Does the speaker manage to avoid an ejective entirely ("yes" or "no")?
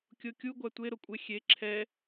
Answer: no